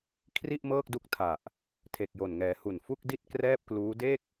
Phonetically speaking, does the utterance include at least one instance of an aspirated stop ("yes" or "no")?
yes